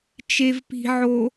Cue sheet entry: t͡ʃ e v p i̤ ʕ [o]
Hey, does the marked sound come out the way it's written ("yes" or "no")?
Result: yes